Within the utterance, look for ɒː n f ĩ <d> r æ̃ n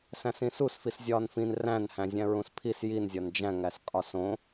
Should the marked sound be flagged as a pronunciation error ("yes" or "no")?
yes